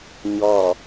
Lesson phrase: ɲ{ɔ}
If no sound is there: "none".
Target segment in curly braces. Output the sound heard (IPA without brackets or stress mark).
ɔ